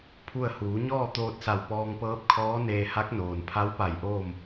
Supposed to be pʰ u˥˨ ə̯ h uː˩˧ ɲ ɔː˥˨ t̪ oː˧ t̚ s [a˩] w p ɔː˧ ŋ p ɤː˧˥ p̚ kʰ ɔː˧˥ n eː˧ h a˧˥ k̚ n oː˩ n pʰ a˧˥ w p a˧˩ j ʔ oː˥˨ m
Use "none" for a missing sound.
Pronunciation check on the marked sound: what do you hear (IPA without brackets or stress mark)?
a˧˩